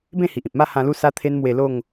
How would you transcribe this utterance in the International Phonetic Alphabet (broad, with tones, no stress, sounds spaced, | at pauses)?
b ẽ˥˧ h i˨ ʔ ĩ˨ p̚ m a˥˧ h ã˧ l u˥˧ s a˦ t̪ʰ e˦ n m w e˧ l o˥˧ ŋ